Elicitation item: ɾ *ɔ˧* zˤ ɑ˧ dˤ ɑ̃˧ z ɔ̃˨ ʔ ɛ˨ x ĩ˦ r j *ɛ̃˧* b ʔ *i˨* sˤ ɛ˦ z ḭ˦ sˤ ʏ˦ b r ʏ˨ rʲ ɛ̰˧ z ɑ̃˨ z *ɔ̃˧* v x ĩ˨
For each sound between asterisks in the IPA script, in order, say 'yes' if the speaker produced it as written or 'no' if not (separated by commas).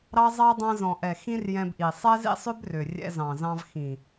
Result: no, yes, yes, no